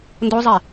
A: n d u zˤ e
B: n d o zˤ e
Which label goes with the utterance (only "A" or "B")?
B